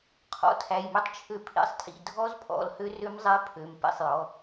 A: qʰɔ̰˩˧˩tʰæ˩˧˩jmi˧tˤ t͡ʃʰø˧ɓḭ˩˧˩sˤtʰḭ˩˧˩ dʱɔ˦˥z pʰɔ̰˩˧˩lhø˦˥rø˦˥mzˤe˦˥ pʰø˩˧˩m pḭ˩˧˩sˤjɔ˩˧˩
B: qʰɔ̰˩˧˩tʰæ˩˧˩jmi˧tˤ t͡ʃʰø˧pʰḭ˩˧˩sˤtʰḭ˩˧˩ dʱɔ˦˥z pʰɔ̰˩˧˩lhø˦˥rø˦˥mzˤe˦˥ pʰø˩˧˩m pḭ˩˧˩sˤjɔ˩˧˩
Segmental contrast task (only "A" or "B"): B